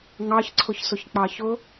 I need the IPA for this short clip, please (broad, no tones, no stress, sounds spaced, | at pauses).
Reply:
ŋ ɑ ç ǀʰ ʊ ç s ʊ ç k͡p ɑ ç ʊ